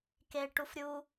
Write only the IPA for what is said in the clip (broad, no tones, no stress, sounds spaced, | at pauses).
k e ʈ u f ɾʲ u